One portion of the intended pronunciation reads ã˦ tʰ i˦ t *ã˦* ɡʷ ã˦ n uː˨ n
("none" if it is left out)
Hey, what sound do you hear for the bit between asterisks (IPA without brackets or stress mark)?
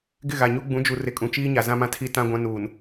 ã˦